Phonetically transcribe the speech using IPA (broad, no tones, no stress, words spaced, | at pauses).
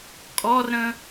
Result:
kʼɔrɾə̃